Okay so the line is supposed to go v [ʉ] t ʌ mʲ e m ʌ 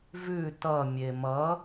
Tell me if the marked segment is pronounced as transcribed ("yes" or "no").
yes